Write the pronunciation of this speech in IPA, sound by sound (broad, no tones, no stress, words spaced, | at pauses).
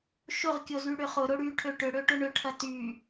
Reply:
ʃʊʁkʲozy ɽʏχʊ ɾʊɽyʈʰø ʈʏɽøʈʊ ɳʏʈʰɐ ty